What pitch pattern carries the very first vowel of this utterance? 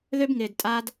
high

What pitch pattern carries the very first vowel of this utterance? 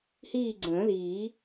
falling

